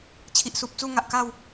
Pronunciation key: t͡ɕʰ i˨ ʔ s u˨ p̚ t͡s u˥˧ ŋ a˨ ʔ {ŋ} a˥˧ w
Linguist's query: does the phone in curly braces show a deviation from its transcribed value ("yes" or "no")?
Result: yes